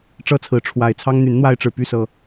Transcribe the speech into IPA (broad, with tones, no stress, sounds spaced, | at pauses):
ʈ͡ʂ ɤ˦ t͡sʰ ɹ̩˨˦ ʈ͡ʂʰ w a˨˩ ɪ̯ t͡sʰ ɑ˦ ŋ n̪ y˨˦ n n̪ w a˦ ɪ̯ ʈ͡ʂ ɻ̩˨ p y˥˨ s ɤ˨˩